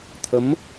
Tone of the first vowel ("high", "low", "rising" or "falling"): rising